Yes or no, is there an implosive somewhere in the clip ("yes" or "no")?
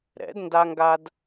no